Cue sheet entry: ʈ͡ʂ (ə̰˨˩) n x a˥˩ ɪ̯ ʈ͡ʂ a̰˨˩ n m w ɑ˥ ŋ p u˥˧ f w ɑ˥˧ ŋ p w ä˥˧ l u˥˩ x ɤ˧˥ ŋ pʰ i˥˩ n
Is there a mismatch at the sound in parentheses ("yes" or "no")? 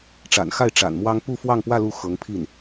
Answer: yes